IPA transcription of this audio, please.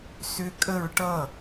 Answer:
s ʏ kʼ ə ɹ ʈ ʌ

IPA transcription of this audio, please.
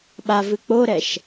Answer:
ɓ a v ɨ k͡p o ɾ ɛ ʃ

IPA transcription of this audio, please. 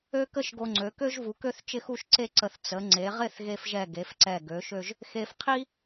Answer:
ø˥ k ə˥ ʃ ɡ o˧ ŋ͡ǀ ø˩˧ k ø˥ ʒ v u˩˧ k ø˥˧ θ t͡ʃ ɪ˥˧ x u˥˧ ʃ ǀ e˥˧ ǀ ə˧˩ θ t͡s ə˩˧ ŋ͡ǀ e˩˧ ʁ ɪ˥˧ θ ɣ e˧ f ʒ ɛ˧˩ ɡ e˩˧ f ǀ ɛ˧˩ ɡ ø˩˧ ʃ ø˥˧ ʒ | x e˧ f qʰ i˥

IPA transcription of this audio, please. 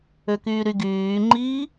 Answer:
ø k yː ɾ y ɡ yː ŋ͡ǃ iː

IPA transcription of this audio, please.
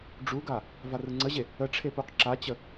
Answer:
ɖ͡ʐ u ɡ a | v a r ɯ ŋ͡ǀ ə ʑ e | ə ʈ͡ʂʰ e p u q ǁ a t͡ɕ ə

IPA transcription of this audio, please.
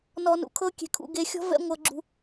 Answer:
n ɔ˧ n ṵ˨ kʰ ɤ˦ kʲ e̤˧ kʰ ṵ˧ ɡ e˧ xʲ ɔ̤˦ v ɛ̰˦ ŋʷ ɤ˧ ɡ͡ǁ ṳ˧

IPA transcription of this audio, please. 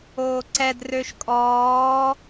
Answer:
oː ǀ ɛ d r ø ʃ kʼ ɔː

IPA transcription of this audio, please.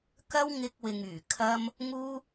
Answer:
k ɐ˥ w ŋ ɪ˧ k̚ w ɪ˨ ŋ yː˨˩ kʰ ɐ˧ m | ŋ uː˥

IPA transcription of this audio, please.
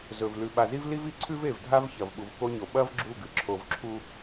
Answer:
z ɵ˨ v l ʉ˨ ɓ a˨ z i˦ v l i˦ v i˨ ǀʰ ʉ˦ v e˨ v dʱ a˦ v ç ɐ˨ v ɓ u˨ v k o˦ ɲ o˨ ɓ ɐ˦ v ɡ͡ǁ u˦˨ ɡ ɨ˨ ǁʰ o˨ v ǁʰ u˦

